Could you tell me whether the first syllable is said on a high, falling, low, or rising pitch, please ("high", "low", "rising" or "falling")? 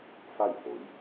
falling